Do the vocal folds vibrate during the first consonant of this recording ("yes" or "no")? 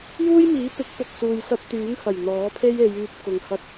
yes